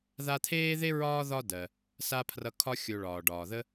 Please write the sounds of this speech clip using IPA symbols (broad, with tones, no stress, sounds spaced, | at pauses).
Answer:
ð a˦ t̪ʰ eː˥ ð e˥ ɹ ɒː˦ ð ɒ˦ d ɜ˩ | s a˥ pʰ r ʌ˦ kʰ ɒ˦ xʲ o˨ ɭ ɒː˩ ɖ ɒː˩ ð ə˦